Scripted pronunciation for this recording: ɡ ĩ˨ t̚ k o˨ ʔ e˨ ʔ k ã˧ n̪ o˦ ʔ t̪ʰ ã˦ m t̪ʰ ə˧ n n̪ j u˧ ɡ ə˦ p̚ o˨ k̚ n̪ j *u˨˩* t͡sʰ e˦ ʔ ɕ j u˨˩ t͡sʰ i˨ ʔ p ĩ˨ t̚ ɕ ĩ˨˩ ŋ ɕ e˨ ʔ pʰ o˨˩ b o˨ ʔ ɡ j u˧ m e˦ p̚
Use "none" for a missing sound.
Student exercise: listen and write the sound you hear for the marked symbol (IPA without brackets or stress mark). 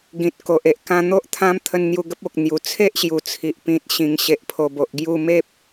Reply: u˨˩